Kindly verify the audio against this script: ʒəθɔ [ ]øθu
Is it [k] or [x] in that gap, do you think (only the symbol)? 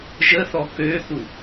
k